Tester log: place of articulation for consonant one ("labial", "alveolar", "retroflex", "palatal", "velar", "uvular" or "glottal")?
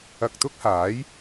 velar